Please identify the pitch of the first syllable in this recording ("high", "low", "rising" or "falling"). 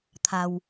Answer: low